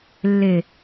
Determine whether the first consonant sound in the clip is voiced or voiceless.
voiced